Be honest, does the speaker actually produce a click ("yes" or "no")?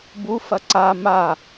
yes